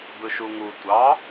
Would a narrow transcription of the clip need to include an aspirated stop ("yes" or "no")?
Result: no